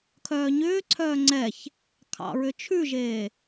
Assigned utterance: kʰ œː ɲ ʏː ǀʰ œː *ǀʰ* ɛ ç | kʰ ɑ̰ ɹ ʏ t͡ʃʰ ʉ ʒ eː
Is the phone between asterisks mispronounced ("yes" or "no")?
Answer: yes